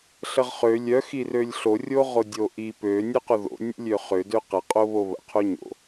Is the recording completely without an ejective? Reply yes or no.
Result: no